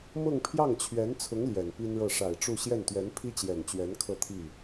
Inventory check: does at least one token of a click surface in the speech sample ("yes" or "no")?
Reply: no